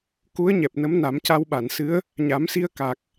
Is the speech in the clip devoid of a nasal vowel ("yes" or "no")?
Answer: yes